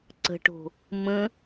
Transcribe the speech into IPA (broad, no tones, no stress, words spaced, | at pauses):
ǀə̤ʈo̤ | mə̃